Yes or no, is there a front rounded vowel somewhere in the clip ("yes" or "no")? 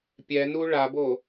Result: no